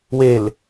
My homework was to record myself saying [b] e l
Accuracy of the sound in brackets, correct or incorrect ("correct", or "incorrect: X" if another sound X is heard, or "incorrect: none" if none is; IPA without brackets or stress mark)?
incorrect: w